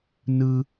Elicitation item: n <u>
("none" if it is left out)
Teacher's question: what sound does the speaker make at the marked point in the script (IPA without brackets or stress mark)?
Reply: ɯ